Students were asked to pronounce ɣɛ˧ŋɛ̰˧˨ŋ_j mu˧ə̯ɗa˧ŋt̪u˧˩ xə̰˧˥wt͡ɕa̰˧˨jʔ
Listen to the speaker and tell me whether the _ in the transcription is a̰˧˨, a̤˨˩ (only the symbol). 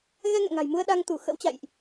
a̤˨˩